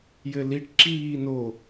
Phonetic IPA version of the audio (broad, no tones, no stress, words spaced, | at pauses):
jɘliʈ ǁiːno